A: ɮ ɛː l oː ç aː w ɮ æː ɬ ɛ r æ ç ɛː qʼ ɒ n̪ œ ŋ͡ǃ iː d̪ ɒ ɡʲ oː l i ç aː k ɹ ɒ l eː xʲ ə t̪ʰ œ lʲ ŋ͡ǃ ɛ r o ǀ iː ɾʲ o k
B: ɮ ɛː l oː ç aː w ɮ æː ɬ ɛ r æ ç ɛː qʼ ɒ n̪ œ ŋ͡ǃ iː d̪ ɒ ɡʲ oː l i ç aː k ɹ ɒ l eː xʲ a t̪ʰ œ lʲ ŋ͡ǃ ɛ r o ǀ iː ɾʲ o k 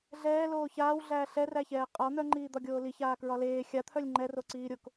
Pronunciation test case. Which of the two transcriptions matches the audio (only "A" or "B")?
B